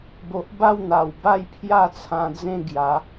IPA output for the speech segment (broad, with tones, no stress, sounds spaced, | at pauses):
b o˨ ʔ b a˥˧ w n̪ a˨˩ w b a˥˧ j pʰ j a˥˧ t͡sʰ ã˧ d͡z ẽ˥˧ ɡ j a˨˦